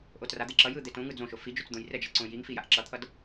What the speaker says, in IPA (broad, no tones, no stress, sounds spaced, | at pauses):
ʔ o t r a d̪ e ǁ ʌ j ɯ d̪ e t õ ŋ ɯ d͡z õ ʃ o f i d͡ʒ o t͡s d̪ õ j r ɛ d͡ʒ ʌ ǀ õ j i ŋ f i j a ʔ ǁ ʌ t̪ʰ ʌ d